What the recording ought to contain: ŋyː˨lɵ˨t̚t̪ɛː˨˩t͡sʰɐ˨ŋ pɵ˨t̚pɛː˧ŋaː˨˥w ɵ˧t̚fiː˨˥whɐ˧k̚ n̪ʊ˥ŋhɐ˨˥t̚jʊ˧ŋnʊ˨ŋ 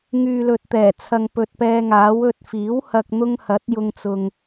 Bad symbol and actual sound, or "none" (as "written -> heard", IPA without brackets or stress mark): n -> t͡s